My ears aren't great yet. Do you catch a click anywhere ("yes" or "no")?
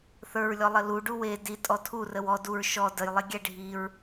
no